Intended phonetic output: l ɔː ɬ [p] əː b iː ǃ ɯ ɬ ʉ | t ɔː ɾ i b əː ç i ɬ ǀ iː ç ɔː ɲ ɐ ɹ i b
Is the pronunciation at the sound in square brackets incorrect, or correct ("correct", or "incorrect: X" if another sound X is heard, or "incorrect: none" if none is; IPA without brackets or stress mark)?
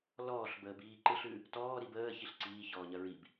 incorrect: b